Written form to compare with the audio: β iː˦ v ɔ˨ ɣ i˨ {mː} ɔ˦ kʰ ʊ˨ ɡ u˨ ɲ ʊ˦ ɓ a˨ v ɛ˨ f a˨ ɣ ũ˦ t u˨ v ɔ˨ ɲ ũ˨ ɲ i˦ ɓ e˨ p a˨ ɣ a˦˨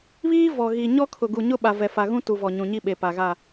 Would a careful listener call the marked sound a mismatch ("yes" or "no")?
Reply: yes